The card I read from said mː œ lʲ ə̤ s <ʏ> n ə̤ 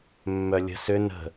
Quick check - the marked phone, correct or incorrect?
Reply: correct